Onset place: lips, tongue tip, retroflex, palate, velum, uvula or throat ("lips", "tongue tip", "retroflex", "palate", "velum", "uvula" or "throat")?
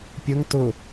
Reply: lips